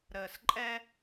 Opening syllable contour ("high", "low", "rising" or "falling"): low